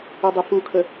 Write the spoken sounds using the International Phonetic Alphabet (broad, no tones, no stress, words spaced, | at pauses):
ʊdˤəfukʰə